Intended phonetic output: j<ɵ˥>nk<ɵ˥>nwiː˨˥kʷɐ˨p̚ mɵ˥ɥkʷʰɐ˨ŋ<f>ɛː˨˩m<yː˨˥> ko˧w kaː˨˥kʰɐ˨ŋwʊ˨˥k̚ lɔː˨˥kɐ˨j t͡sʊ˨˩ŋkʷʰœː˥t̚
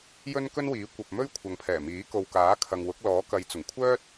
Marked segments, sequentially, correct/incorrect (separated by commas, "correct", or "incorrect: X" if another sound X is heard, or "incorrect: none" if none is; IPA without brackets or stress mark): correct, correct, incorrect: pʰ, incorrect: iː˨˥